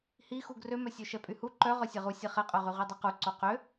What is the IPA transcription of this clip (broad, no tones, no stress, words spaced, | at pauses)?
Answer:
hixu ɡrømœ sʲøʃɛpʼyhu ǃœ ʁœsʲɛʁu sʲɛχɛqʼœʁy ʁidˤiqu ǀoqø